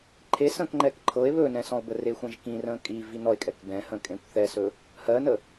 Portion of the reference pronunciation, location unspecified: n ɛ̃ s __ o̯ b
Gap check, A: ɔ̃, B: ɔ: A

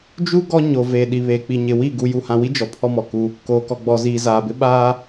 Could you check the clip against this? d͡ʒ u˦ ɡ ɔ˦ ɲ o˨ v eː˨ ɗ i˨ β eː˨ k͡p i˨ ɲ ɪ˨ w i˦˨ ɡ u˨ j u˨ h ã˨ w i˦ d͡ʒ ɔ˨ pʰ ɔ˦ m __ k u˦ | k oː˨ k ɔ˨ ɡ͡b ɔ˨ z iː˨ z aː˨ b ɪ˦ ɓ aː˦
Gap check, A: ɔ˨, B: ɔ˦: A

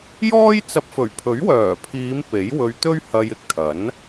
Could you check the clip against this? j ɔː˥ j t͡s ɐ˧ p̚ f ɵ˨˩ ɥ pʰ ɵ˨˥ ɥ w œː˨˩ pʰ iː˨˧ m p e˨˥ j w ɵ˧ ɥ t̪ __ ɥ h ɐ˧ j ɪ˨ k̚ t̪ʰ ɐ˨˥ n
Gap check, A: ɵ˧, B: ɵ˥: B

